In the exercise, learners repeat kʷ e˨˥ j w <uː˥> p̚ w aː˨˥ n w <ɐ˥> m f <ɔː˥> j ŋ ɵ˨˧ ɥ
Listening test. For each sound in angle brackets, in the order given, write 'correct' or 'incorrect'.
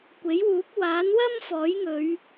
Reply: incorrect: uː˨˥, correct, incorrect: ɔː˨˥

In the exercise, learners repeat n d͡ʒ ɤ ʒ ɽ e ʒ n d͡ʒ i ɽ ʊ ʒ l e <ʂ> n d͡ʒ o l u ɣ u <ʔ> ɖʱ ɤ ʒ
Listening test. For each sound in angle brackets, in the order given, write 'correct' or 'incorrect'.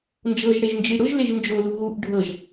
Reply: incorrect: ʒ, correct

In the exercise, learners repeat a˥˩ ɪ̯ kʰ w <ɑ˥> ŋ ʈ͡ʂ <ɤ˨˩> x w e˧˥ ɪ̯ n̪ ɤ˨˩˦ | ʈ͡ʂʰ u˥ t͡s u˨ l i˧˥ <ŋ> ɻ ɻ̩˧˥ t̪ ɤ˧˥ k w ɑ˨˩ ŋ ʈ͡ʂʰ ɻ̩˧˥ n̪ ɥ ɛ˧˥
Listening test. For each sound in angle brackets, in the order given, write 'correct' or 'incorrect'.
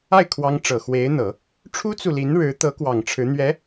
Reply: correct, correct, incorrect: n

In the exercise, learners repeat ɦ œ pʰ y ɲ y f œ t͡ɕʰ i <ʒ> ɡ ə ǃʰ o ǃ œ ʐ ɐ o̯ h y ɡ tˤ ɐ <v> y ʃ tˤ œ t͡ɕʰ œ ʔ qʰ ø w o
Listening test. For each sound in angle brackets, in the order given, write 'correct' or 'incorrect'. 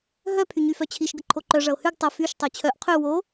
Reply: incorrect: ʃ, incorrect: f

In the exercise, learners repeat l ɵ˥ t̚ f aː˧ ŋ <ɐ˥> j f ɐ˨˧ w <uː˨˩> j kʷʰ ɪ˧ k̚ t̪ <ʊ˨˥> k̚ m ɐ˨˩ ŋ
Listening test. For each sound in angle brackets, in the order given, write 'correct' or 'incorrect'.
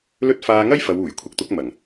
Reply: correct, correct, correct

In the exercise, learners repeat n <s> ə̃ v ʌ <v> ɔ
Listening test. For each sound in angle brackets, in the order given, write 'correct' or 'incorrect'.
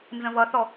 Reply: incorrect: z, incorrect: θ

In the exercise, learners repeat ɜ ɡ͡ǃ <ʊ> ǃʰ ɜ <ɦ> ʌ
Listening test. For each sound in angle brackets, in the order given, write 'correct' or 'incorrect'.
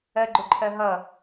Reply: correct, correct

